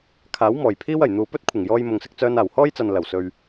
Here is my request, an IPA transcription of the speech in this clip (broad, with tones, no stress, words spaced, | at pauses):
kʰaː˨˥wmɔː˨˩j pʰiː˥wɐ˨˩j n̪uː˨pɵ˥t̚kʷʰɪ˨˩ŋjɔː˧j mʊ˨ŋsɪ˧k̚ t͡sœː˧naː˨˩whɔː˥jt͡sɐ˨n lɐ˨˩wsɵ˨ɥ